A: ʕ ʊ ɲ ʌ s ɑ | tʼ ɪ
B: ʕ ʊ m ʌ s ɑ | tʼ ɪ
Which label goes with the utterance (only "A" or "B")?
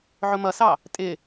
B